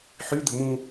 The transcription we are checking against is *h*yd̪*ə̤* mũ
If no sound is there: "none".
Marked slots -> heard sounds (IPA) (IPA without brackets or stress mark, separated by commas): ħ, ə̤